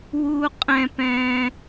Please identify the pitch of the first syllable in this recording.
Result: high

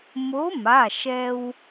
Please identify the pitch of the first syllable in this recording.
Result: rising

